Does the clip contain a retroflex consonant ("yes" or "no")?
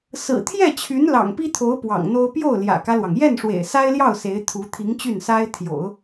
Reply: yes